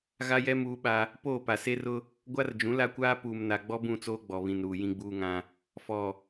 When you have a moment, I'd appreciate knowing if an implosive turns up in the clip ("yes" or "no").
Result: yes